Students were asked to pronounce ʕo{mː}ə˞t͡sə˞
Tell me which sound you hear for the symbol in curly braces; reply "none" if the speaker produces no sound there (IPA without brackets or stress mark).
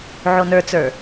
n